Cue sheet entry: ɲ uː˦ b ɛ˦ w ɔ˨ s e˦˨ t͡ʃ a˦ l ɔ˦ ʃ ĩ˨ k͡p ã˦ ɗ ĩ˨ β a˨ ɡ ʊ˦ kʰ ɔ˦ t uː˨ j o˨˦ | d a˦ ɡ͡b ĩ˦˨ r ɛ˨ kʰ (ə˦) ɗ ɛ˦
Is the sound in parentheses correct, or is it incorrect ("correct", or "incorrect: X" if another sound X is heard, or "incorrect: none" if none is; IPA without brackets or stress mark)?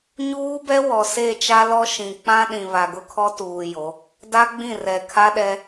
incorrect: a˦